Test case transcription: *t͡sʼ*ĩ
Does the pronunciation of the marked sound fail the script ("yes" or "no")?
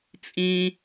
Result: no